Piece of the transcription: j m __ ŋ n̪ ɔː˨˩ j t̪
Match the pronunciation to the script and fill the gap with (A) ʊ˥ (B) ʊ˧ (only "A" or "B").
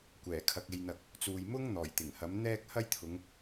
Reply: A